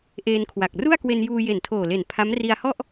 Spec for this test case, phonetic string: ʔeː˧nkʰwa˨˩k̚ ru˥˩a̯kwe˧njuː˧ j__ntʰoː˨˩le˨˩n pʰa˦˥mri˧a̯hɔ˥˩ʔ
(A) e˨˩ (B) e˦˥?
A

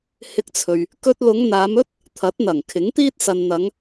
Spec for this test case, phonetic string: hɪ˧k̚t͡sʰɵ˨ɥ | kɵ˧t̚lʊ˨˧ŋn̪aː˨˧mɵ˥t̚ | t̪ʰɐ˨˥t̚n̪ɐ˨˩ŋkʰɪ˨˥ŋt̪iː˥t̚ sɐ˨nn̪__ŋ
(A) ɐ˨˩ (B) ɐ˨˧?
B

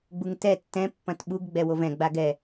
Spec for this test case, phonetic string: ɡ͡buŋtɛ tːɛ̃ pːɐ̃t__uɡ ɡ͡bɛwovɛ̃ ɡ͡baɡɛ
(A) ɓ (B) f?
A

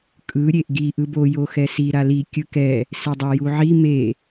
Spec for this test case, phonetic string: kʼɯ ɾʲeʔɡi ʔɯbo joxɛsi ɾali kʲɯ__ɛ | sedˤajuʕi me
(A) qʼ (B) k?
B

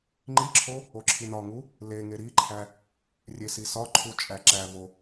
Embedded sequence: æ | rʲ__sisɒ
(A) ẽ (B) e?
B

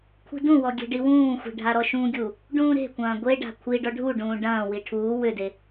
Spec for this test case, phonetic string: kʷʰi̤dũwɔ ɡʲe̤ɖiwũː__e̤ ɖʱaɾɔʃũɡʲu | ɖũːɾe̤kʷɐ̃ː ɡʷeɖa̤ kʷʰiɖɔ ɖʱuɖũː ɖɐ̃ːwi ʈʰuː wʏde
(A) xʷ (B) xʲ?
A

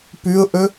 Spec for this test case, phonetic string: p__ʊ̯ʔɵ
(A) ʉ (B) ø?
A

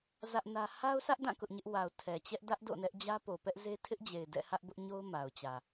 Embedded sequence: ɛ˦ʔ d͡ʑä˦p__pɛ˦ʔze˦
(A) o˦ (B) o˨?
B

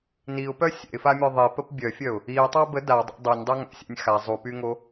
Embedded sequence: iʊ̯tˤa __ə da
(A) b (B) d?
A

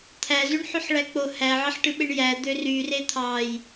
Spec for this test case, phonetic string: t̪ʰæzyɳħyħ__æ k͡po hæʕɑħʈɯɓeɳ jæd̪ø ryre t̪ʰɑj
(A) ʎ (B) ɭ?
B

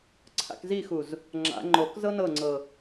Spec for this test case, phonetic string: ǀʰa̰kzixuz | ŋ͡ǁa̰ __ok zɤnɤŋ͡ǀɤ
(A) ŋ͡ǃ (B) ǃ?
A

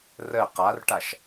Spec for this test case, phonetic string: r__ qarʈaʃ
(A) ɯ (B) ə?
B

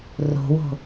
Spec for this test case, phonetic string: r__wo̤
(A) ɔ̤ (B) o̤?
B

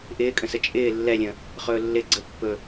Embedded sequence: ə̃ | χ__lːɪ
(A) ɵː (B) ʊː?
A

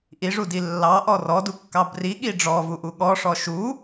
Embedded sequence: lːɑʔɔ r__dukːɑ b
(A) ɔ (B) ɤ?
A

